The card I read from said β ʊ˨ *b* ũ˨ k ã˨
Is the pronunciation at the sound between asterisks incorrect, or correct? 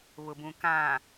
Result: correct